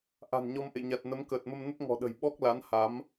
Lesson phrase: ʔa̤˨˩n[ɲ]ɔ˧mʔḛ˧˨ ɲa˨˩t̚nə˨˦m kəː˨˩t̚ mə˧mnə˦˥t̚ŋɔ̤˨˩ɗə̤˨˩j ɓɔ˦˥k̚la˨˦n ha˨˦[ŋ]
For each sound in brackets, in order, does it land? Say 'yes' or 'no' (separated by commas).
yes, no